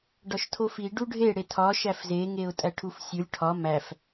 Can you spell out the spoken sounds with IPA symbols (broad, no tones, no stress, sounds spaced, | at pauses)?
ɖ ɒ ʃ tʰ o f i ɖ u ɖʱ e ɽ e tʰ ɒ ʃ æ f z e ŋ e ʊ̯ tʼ æ ʈʰ u f sʲ u lʲ ʈʰ ɒ m æ f